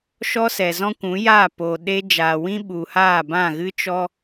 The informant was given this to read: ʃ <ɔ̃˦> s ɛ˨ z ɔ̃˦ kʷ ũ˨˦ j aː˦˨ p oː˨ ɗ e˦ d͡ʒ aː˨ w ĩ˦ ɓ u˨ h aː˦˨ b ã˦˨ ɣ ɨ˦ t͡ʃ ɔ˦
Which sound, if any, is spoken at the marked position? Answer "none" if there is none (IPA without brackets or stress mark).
ɔ˦